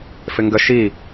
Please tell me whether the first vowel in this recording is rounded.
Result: no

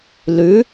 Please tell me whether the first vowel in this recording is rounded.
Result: yes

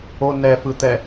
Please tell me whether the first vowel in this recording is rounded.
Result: yes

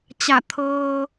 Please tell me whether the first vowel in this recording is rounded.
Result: no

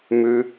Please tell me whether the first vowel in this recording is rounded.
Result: yes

